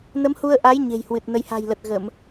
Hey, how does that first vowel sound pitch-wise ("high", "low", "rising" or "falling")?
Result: rising